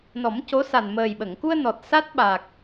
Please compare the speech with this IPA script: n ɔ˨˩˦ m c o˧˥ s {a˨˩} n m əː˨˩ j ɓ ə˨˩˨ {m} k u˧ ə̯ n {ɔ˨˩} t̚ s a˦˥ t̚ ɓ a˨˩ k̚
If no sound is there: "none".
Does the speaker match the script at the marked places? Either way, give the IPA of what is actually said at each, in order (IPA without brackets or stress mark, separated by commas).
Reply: a˨˩, ŋ, ɔ˨˩